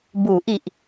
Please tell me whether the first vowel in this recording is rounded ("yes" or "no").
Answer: yes